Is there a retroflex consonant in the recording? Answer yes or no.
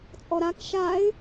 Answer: no